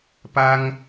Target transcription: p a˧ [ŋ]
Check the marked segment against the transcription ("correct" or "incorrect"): correct